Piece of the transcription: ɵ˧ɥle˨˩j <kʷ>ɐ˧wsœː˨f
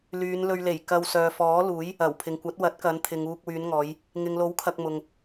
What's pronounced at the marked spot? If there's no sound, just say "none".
k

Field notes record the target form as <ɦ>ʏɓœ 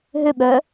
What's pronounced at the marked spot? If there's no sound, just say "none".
ɦ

